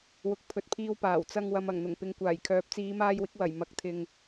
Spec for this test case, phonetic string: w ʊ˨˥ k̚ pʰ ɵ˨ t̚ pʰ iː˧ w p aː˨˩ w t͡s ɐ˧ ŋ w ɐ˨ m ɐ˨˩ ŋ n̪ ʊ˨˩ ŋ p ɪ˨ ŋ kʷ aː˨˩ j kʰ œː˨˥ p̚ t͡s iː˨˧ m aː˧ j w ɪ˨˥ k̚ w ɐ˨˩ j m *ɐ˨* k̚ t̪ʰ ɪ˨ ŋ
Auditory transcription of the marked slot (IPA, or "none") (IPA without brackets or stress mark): ɐ˨˥